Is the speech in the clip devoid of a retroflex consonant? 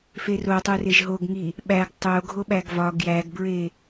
yes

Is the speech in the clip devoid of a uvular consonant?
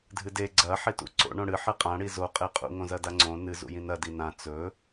no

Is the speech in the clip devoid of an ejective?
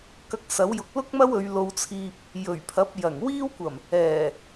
yes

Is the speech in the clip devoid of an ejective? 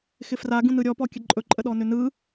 no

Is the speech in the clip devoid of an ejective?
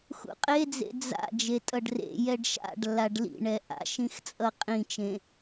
no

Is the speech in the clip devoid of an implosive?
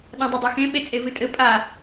no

